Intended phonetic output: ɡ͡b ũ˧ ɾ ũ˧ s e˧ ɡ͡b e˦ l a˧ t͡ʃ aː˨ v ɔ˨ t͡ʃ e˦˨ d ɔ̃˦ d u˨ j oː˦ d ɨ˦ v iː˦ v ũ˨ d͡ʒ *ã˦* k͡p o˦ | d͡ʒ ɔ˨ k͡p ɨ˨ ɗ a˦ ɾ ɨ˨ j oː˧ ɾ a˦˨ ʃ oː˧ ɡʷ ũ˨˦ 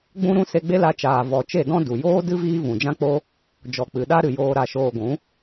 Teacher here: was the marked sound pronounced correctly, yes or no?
yes